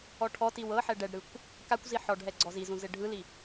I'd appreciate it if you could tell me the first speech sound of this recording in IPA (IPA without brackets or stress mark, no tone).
ɔ